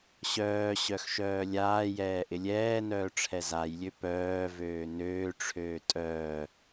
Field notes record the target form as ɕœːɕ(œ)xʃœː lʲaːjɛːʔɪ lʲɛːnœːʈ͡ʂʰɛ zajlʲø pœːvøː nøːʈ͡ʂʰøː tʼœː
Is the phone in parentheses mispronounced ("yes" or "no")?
no